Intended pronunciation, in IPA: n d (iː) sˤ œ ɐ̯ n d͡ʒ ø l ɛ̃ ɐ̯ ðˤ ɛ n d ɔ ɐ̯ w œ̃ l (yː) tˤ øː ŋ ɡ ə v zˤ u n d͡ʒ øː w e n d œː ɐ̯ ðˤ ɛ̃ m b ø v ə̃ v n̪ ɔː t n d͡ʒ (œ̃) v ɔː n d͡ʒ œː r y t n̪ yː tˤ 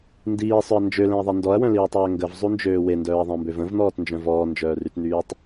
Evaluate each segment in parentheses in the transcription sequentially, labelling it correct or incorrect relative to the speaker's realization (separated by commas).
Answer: correct, incorrect, correct